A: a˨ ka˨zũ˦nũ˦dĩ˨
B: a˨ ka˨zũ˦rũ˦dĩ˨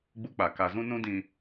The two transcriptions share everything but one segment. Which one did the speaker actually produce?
A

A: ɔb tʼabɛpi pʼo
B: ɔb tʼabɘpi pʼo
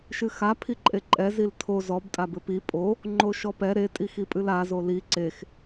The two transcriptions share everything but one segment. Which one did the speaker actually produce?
B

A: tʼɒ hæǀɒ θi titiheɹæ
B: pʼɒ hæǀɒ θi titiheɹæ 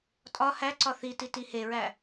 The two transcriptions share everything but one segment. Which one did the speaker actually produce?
A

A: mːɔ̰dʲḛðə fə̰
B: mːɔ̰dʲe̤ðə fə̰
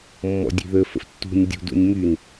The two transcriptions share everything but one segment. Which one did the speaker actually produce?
B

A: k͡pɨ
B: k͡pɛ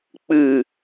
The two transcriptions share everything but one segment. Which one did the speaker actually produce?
A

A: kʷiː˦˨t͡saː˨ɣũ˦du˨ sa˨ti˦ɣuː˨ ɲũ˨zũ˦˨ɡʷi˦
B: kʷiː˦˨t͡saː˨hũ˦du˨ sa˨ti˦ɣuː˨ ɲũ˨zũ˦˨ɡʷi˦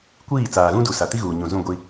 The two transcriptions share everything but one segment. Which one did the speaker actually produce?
A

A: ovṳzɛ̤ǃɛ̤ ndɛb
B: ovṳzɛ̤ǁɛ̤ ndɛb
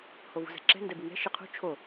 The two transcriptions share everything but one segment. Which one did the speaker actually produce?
B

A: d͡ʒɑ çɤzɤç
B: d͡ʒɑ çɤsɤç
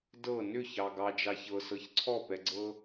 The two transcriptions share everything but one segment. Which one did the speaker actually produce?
B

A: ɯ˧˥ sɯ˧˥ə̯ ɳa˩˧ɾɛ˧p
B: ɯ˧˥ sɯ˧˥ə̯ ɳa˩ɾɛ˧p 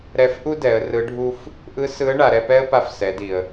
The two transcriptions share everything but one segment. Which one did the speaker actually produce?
A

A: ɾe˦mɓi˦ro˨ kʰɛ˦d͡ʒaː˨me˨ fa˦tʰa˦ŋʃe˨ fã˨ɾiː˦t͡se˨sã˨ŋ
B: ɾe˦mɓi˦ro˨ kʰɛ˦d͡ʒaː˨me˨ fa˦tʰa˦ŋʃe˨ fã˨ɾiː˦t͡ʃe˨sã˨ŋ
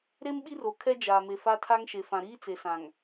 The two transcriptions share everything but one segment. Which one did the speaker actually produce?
A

